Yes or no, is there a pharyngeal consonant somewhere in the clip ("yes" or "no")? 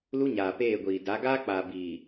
no